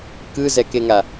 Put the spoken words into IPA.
kɯzɛkeŋa

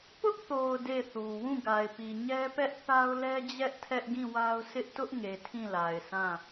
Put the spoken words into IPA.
pʊ˦ʔθo˨ʊ̯ de˦˨θu˨ wũ˦˨ɡa˨ɪ̯pi˨ ɲɛ˦pɛ˦ʔ θa˦ʊ̯lɛ˦d͡ʑɛ˦ʔ tʰɛ˦ʔɡĩ˦˨wa˦ʊ̯ sʰɪ˦ʔtʊ˦ʔ ŋe˨ tʰĩ˦˨la˨ɪ̯sʰã˦˨

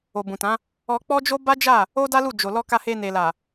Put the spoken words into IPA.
o˨bũ˨tã˨˦ | ɔ˧k͡pɔ˦d͡ʒo˦ ba˦d͡ʒa˦˨ | o˦da˦lu˦˨ d͡ʒo˨lɔ˧ ka˧he˧ne˨ la˨

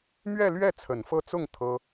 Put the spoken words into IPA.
mɥɛ˥˧lɥɛ˥˩ t͡sʰə˨˩nfɤ˥˧ t͡sʊ˥˩ŋ t̪ʰɤ˥

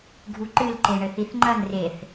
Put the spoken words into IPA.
ɡʱuǃɨl ǃeɳɘθiθŋ͡ǃɐn reθ

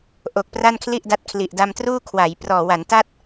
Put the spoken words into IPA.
ʔo˨˩k̚pra˥˩nkʰli˥˩ʔda˦˥t̚ kʰli˨˩ʔ da˧mtruː˥˩ kʰwa˩˦j prɔː˨˩ wa˩˦nta˥˩t̚

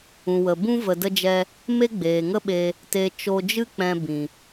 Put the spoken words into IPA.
ũ˨wə˨bũ˦ və˧də˦d͡ʒɛ˦ | me˦ɡ͡beː˨ŋə˦ɓe˧ | te˧ t͡ʃo˧d͡ʒɨ˦k͡pɛ̃˧ bĩ˨

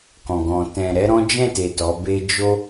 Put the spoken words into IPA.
kɔ̃˨ɡɔ̃˨ tɛ̃˨ɾɛ˧ ɾɔ̃˦ d͡ʒɛ̃˦˨te˨ tɔ˨˦be˦ d͡ʒo˦

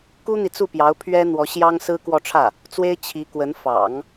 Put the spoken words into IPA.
ku˥n̪i˨t͡su˥˩pjɑ˧˥ʊ̯ pʰɥɛ˥ n̪wɔ˧˥ɕjɑ˥ŋ sɹ̩˥kwɔ˥˧ʈ͡ʂʰä˥˩ | t͡swe˥ɪ̯ t͡ɕʰi˧˥kwə˧˥n fɑ̰˨˩˦ŋ

